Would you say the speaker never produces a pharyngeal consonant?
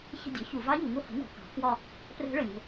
yes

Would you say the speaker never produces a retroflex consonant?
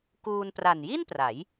yes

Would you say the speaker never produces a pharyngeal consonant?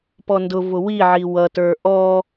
no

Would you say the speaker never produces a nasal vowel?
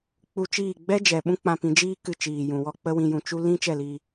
no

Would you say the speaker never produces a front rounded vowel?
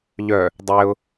no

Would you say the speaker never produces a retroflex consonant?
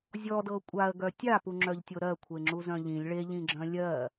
no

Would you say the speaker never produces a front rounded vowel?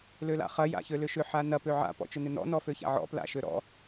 no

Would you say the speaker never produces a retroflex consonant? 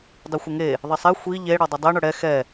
no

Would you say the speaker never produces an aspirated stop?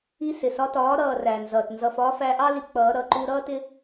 yes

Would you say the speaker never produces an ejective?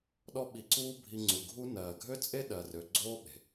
no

